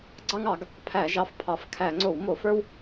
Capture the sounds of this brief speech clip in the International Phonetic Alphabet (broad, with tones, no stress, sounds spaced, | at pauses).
ɡ͡ǀ ɑ˦ ŋ ɑ˧˩˧ ɡ | pʰ æ˧˩˧ ʒ ɑ˩˥ f pʰ ɑ˩˧ f kʰ æ˧˩˧ ŋ͡ǀ o˧˩˧ w m o˧˩˧ f ə˞˦ w